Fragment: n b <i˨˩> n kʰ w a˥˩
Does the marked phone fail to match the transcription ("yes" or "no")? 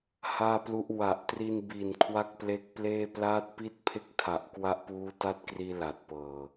no